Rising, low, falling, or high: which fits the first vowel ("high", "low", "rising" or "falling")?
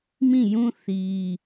falling